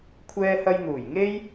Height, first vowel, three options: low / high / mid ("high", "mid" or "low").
mid